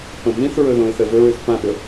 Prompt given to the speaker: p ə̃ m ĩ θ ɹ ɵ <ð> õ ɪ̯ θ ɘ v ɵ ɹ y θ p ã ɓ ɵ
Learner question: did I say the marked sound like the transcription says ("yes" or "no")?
yes